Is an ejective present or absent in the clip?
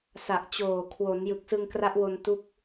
absent